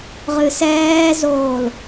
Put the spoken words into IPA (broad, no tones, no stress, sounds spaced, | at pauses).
ʁ ɨ s ɛː z oː l